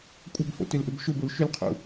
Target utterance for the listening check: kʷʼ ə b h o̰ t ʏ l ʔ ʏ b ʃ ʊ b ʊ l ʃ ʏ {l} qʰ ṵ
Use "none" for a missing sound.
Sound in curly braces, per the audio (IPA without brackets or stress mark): l